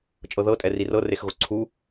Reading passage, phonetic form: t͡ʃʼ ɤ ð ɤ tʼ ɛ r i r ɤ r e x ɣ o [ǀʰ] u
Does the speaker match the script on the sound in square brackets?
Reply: yes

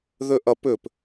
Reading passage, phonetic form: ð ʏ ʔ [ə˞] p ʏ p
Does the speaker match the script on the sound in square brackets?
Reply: no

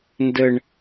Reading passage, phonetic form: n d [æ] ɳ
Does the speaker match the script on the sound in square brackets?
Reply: no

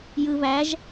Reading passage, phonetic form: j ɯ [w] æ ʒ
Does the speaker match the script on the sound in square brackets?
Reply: no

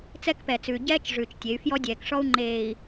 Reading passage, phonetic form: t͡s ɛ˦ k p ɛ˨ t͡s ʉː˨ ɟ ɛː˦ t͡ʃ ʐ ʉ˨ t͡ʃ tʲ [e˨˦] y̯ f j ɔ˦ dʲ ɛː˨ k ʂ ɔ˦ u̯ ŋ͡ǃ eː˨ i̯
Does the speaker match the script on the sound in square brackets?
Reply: yes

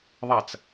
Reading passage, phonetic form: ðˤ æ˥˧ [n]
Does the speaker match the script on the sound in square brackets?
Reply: no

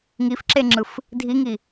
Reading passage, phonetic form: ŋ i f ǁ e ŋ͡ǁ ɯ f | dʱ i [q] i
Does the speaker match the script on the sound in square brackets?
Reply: no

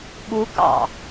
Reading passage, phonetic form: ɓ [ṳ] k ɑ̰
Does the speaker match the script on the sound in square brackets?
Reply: no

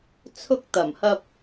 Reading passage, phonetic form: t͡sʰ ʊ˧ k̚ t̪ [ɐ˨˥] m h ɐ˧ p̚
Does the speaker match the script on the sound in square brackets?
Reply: no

